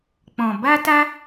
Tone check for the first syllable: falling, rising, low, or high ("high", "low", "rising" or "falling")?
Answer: low